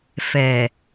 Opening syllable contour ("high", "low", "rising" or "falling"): low